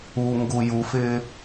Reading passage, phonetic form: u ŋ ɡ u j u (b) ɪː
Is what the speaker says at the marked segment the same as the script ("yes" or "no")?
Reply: no